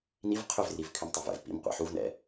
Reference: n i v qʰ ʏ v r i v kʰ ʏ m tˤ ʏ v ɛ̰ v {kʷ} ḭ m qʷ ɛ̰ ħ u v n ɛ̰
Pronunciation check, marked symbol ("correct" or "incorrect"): incorrect